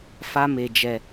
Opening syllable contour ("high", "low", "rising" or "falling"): high